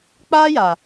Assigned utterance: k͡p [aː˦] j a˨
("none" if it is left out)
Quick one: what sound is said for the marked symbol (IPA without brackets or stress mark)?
aː˦